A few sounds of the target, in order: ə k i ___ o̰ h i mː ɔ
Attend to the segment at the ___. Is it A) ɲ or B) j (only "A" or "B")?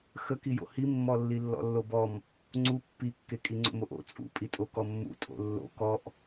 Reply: B